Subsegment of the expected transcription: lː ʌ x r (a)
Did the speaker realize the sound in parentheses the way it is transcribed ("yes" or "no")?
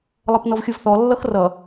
no